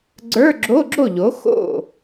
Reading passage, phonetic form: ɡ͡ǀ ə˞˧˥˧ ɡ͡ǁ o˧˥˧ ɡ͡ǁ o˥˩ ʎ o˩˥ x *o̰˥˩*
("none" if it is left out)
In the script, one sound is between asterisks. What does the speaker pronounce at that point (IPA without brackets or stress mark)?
o̰˥˩